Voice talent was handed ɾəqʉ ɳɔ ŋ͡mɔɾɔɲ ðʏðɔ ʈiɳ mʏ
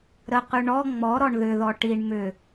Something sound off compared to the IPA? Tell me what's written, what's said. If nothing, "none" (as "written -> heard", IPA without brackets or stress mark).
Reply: ɲ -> ɳ